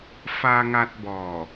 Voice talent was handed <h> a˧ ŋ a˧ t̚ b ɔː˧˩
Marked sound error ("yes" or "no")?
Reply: yes